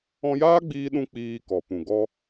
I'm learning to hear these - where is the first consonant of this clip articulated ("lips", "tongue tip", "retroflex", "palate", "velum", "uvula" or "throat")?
palate